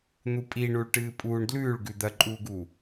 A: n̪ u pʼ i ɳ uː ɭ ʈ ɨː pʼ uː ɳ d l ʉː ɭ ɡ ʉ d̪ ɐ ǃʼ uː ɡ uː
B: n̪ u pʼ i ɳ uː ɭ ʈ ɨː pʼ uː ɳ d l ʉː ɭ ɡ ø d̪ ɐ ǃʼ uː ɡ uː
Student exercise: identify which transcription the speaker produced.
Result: A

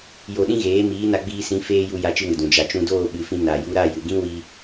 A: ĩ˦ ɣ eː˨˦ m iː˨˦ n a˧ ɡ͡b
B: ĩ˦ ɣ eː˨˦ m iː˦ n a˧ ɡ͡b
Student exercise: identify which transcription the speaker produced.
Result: A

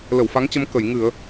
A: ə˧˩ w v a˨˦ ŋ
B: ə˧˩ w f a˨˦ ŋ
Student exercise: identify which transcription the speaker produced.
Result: B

